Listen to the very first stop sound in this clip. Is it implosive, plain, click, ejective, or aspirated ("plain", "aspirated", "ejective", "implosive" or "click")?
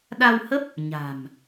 implosive